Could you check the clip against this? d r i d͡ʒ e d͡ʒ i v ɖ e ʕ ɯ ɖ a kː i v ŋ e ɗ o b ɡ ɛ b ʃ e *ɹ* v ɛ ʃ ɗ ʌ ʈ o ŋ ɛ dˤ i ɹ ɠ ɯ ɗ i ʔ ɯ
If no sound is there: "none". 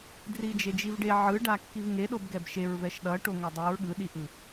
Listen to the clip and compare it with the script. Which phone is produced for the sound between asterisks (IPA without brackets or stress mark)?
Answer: ɹ